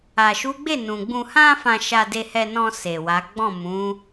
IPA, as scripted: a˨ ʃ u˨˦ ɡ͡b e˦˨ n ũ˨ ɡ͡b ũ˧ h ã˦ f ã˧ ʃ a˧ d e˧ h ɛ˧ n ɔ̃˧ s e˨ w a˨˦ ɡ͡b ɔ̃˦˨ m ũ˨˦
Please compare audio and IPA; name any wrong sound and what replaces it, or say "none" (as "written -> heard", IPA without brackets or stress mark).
none